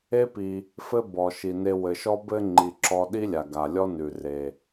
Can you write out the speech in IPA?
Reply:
e˦pi˩ | fɘ˦bɔ˩ ʃi˩ne˨ wɘ˩ʃɔ˦bɘ˦ ŋ͡ǃi˩ǁɔ˨ ɗi˦lʲa˩ɡa˩ lʲɔ˦ nʉ˩re˩

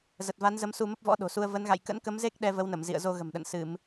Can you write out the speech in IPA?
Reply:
zə˨˩t̚va˨˦nzə˨˦m su˧mə˦˥p̚vɔ̰˧˥ ɗo̤˨˩su˧ə̯ və˨˦nɣa̰˧˨j kə̰˧˥nkə˨˦mze˦˥k̚ ɗɛ˧və˨˦wnə˧˩mzḭ˧˨ə̯ zo˧ɣə̤˨˩mɗə̰˧˨n sɨ˧˩˨m

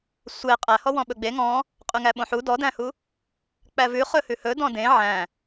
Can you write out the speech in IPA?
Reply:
sʷe qʼæhɔ wɔ̃ɓɵɡ͡be ŋɔ̃ | qʼyŋæɓõħu dɔdæ̃hu | k͡pævʉ χɵhʉhɵ dɔ̃dẽ ʕæ̃

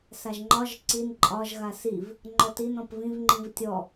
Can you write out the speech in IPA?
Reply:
saʒŋ͡ǃɒʒ ǀin ǃʼɒʒ ɣasiv | ŋ͡ǃɔtin ɔ̃pvĩv ŋ͡ǃĩvtʲɔ

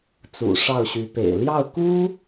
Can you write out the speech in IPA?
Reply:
t͡sṵ˨˩ʂɑ˥˩ʊ̯ɕy˧˥pḛ˨˩ɪ̯ ljɑ˥˩ʊ̯ku˥

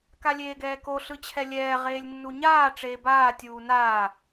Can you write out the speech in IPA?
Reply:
kalʲeːɡɛːko ɬɯt͡ɕʰɛlʲɛː ʁeːlʲnːuɲaː ʈ͡ʂeːbaː tʲuːnaː

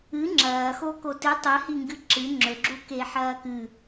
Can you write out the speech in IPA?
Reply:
ɨ ŋ͡ǁɐːxo kotɨ tˤɨhiŋɡɨ ǁɨ ŋ͡ǁɵɡ͡ǁuke ħɐːkɨ

